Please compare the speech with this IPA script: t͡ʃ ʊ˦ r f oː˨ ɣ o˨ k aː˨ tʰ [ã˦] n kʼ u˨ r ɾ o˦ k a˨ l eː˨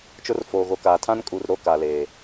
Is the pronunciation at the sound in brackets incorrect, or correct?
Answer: correct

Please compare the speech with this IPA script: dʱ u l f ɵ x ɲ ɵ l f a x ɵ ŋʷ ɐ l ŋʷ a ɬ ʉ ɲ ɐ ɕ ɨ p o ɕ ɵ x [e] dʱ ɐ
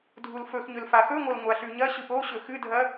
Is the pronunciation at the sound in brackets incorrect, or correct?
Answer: incorrect: ɨ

